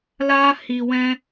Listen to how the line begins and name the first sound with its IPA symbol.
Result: l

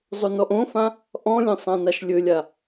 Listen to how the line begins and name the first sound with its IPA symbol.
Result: zˤ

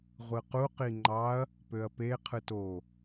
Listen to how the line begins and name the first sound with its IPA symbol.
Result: ʁʷ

